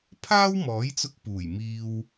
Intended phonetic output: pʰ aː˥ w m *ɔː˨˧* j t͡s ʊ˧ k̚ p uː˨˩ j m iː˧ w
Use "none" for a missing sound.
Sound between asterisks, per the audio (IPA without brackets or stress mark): ɔː˨˥